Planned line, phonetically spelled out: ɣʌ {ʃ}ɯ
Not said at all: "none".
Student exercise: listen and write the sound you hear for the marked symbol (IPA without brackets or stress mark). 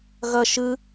ʃ